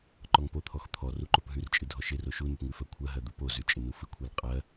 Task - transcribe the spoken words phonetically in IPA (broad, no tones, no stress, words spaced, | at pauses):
ǃɔŋpot̪ʰɔx t̪ʰɔ ruǃopɦʉrt͡ʃʼɨ dʱɔʃɪro ʃunʉp ŋʉfɜkʷʰɜɦɜ d̪upozʉ t͡ʃʼɪnufɨkʷʰel qʼɜ